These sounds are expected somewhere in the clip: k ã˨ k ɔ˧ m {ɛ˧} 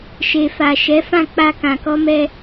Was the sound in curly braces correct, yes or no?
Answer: yes